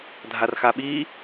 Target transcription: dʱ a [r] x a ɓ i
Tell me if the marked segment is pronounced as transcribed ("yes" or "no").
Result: yes